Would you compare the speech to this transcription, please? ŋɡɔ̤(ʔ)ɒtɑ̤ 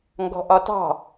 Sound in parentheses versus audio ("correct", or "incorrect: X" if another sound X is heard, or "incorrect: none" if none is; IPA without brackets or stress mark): correct